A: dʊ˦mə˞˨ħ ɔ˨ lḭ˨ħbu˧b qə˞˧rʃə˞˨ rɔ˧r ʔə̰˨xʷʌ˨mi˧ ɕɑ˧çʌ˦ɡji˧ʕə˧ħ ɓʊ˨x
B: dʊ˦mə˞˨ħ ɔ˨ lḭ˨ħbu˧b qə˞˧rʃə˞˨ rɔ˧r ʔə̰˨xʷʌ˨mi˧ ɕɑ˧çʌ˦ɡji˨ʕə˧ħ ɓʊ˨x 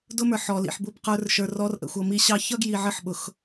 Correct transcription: B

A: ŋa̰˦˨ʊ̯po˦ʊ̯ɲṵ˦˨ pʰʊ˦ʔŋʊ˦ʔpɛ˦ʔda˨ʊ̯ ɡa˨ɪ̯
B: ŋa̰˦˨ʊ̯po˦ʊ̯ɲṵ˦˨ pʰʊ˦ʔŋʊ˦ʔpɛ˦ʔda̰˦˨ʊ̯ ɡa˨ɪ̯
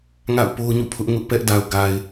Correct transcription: A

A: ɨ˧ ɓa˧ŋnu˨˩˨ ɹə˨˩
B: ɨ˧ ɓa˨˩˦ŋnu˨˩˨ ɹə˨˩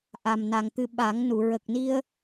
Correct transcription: B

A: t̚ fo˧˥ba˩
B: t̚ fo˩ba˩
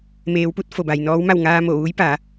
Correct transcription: B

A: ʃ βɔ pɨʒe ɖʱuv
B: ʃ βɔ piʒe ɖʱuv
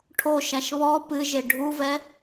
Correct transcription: A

